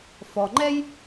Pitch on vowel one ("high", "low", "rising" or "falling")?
low